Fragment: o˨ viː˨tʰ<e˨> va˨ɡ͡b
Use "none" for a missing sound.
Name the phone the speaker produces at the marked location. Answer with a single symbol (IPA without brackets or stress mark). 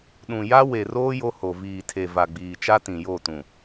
e˨